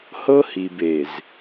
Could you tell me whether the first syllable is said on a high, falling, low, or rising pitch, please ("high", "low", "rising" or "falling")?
high